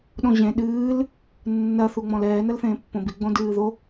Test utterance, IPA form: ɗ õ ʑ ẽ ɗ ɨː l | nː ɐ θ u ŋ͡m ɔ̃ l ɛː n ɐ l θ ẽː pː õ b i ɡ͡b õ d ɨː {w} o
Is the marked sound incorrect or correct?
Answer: incorrect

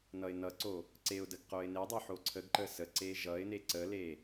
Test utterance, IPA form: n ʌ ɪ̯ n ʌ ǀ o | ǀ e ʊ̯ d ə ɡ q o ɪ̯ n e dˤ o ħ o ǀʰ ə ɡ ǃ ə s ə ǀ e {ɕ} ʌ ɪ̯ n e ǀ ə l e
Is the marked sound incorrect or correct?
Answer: incorrect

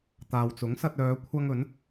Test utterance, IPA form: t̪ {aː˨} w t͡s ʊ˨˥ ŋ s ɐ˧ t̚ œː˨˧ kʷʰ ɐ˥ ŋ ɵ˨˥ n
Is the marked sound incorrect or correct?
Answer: correct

